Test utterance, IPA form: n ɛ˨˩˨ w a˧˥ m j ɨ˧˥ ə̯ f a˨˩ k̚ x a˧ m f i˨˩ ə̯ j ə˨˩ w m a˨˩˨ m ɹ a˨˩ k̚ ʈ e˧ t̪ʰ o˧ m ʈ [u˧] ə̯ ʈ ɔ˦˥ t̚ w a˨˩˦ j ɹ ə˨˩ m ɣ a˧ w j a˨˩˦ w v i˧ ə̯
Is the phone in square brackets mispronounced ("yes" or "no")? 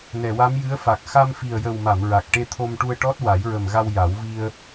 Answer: no